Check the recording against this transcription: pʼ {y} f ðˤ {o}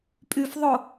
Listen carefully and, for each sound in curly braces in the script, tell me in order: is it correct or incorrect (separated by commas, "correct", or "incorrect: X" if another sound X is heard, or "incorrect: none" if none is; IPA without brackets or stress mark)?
correct, correct